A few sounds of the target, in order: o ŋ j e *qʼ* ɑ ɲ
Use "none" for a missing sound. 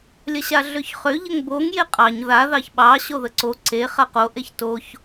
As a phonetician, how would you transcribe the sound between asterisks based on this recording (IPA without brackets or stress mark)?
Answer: qʼ